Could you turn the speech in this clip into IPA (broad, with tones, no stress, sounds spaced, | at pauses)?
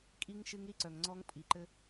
kʼ i˦ ŋ ʃ ɨ˦ ŋ ɾ i˦ ǀ œ˨ ŋ ŋ͡ǀ ɔ˦ ŋ pʼ i˨ ǃ ɘ˦